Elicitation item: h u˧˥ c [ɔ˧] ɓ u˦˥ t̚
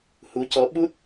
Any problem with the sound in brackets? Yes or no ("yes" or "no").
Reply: yes